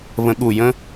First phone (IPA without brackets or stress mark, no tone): β